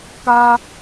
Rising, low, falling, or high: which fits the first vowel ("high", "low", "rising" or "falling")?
high